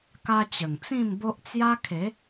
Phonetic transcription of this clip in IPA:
k a˧ t͡ɕ ə˨˩ ŋ t͡s ĩ˥˧ m b o˦ ʔ t͡s j a˦ kʰ e˨˦

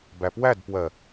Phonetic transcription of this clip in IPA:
b æ p w æ d p w ɜ

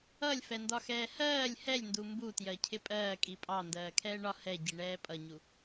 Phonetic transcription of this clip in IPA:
ʌ lʲ f ɛ n d ɒ x ɛː h ɜː lʲ h ɛ lʲ n d u m b u t j ɜ cʰ ɪ pʼ ɜː kʼ i pʼ ɑ n d ɜː kʰ ɛː ɳ ɒ h ɛ ɟ i ɳ ɛː pʼ ʌ ɲ u

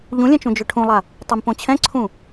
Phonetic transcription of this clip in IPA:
ʎ ũ lʲ ɛ̃ t͡ʃ ũ d͡ʒ ʏ ʈʰ ũ lˠ a | tˤ e m p õ t͡ɕʰ ɛ̃ ǀʰ ũ

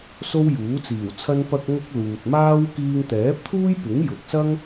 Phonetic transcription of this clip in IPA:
s o˥ w j uː˨˥ t͡s iː˨˩ w t͡sʰ ɐ˥ n p ɐ˧ k̚ ŋ ʊ˧ k̚ l uː˨ t̚ m aː˥ w k iː˧ ŋ t̪ ɛː˨˥ p̚ t̪ʰ uː˥ j p ɪ˨˥ ŋ j ʊ˨ k̚ s ɐ˥ ŋ

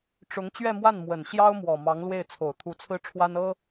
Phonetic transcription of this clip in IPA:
ʈ͡ʂ ʊ˧˥ ŋ t͡ɕ ɥ ɛ˥˧ m w a˥˩ n m w ə˨˩ n ɕ j ɑ˥ ʊ̯ m w ɔ˨˩ m ɑ˧˥ ŋ l w e˥˩ ɪ̯ t͡sʰ o˨˩ ʊ̯ t̪ʰ u˧˥ t͡sʰ ɹ̩˥ ʈ͡ʂʰ w a˥ n ɤ˥

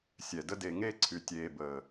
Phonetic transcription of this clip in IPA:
sʲ ɛ˨ d ə˦ d e˧ ŋ e˦ ǀʰ y˨ tʲ eː˨ b əː˨

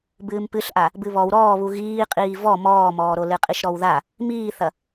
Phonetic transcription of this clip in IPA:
b ɨː m p ɨ ɬ ʔ a | b ɨ β ɔ w ɾ ɔː β u ɣ iː qʼ iː v ɔ m ɔː m ɔː ɾ o l ɨ qʼ i ʃ ɾ ɔ w ð a | m iː θ ɐ

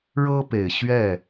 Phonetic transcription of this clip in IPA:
ɻ ɤ˦ p e˨˩ ɪ̯ ɕ ɥ ɛ˥˨

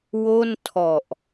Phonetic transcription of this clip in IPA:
w o˥˩ n tʰ ɔ˨˩ ʔ

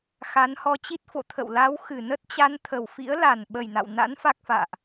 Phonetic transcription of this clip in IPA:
x a˨˦ n h ɔ˧ t͡ɕ i˦˥ t̚ f o̰˧˨ t̪ʰ ə̰˧˨ w l a˨˦ w x ɨ˧˩ n ə˦˥ t̚ t͡ɕ a˧ n t̪ʰ ə˨˩ w f ḭ˧˥ ə̯ l a˨˩ n ɓ ə˨˩ j n a̰˧˨ w n a̰˧˥ n f a˦˥ k̚ f a̰ː˧˨ ʔ

